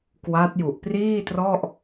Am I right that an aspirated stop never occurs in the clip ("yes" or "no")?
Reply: yes